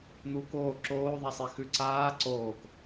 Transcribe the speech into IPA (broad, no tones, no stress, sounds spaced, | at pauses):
n̪ uː k oː ǁ oː ðˤ a sˤ e x ʉ ǀ aː ǀ oː k